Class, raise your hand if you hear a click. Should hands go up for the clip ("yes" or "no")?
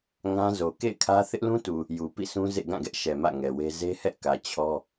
no